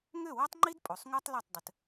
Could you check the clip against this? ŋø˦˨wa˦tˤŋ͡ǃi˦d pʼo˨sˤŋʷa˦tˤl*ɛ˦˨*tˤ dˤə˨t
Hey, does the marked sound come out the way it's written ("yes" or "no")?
yes